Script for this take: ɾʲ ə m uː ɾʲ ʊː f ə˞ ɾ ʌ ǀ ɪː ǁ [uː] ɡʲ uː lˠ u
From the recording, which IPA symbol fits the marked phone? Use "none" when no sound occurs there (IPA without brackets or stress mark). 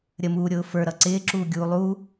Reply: uː